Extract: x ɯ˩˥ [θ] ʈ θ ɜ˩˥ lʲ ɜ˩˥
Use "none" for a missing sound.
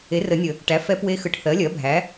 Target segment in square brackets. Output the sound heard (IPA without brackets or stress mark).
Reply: none